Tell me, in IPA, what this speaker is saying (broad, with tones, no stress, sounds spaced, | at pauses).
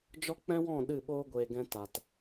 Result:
d͡ʒ ɔ˦ k͡p ɛ̃˦ w ɔ̃˦˨ ɗ ɨ˦˨ ɓ oː˦ ɡʷ eː˨ ɡ ɛ̃˧ t a˨ t